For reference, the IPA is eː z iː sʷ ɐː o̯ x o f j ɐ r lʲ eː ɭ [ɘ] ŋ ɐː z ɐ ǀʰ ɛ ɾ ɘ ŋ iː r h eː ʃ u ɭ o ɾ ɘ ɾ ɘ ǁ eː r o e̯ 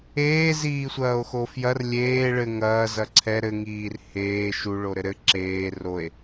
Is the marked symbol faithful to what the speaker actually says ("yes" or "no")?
yes